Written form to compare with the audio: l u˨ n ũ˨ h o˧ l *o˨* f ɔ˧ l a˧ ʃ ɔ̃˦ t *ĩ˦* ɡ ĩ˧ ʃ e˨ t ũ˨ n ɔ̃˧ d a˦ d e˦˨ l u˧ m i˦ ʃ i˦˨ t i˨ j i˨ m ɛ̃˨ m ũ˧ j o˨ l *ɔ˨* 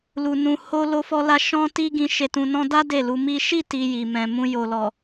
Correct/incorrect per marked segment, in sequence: incorrect: o˧, incorrect: i˦, correct

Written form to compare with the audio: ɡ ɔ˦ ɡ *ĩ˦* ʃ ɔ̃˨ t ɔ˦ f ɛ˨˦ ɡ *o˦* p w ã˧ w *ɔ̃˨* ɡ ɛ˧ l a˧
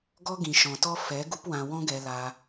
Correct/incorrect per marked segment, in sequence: incorrect: ĩ˨, incorrect: u˦, incorrect: ɔ̃˦

